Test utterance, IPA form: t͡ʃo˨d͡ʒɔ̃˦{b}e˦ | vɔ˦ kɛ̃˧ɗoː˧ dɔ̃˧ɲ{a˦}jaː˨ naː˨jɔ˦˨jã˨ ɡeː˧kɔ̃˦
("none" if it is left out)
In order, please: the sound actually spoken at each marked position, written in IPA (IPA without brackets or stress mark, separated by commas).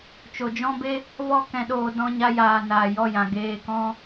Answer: b, a˧